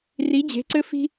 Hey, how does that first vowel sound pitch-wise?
rising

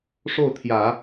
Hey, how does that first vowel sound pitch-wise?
falling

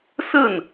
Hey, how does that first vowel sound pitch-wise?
falling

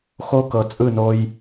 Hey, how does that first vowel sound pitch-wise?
high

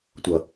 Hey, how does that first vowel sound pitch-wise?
low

